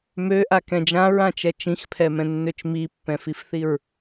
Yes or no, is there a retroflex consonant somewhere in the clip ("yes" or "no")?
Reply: no